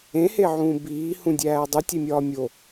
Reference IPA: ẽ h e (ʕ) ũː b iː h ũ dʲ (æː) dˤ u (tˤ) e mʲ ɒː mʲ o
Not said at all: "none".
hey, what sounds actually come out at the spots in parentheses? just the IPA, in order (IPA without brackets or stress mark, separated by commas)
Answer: ʕ, æː, tʲ